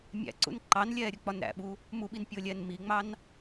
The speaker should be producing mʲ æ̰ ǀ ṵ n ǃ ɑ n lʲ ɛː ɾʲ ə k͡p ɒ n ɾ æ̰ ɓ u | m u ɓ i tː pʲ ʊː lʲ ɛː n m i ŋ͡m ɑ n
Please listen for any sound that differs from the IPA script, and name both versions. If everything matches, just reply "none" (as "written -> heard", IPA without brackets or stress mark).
tː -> n